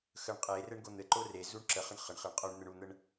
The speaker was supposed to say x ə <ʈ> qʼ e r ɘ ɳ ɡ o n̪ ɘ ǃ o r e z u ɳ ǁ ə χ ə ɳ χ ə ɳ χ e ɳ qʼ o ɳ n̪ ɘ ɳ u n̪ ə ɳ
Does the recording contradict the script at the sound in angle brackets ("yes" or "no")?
yes